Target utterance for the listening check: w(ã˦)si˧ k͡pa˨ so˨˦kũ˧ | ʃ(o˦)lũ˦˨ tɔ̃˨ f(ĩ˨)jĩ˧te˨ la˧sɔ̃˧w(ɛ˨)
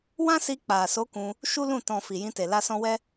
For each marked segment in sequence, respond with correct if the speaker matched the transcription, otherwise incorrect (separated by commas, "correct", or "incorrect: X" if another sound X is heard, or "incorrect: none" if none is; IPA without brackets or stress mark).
correct, incorrect: u˦, incorrect: i˨, incorrect: ɛ˦